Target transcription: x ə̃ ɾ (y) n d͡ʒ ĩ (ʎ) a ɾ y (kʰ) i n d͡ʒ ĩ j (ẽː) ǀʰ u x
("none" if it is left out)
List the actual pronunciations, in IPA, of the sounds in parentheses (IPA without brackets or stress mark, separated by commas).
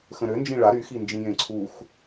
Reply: ø, ɭ, x, ẽ